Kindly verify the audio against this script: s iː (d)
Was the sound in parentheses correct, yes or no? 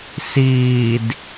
yes